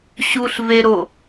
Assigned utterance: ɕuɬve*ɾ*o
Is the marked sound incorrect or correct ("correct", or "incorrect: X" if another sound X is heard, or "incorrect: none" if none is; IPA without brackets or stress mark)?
correct